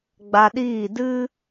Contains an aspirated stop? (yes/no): no